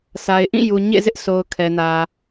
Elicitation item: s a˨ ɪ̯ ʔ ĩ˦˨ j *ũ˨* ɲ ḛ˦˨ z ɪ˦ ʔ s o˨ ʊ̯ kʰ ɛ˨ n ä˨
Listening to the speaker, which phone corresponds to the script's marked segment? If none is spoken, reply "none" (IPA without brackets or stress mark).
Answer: u˨